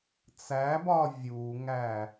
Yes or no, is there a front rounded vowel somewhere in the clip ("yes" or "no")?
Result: no